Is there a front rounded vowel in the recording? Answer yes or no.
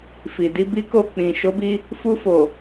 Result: no